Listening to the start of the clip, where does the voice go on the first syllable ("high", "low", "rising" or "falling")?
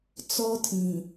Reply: high